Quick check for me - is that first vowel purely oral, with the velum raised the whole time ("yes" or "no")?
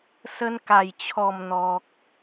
yes